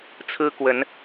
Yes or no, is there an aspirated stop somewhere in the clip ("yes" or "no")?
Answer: yes